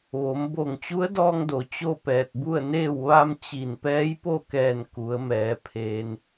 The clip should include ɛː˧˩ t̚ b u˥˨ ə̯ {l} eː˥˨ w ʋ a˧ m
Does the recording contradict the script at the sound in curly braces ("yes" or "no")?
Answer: yes